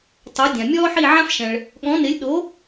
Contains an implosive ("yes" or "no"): yes